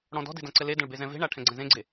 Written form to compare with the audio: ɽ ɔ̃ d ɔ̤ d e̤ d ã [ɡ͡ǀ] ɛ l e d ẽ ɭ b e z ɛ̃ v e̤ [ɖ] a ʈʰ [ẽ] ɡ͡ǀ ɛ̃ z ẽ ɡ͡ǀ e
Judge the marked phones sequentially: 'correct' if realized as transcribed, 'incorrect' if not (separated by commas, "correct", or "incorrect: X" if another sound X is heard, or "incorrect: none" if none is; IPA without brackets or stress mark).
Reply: incorrect: ǀ, incorrect: ɳ, incorrect: ɛ̃